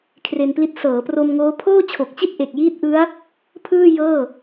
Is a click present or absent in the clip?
absent